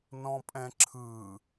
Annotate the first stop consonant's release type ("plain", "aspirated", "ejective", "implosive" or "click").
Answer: ejective